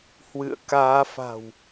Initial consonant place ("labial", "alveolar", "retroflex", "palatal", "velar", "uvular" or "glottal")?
glottal